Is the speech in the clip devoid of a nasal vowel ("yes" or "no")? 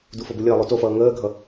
yes